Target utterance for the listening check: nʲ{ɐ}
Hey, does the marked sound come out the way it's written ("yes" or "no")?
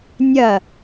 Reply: yes